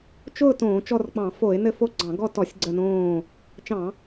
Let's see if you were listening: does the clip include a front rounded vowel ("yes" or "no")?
no